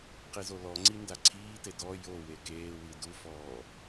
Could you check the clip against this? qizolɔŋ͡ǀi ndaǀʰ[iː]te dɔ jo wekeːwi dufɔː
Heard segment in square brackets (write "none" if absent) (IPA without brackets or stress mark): iː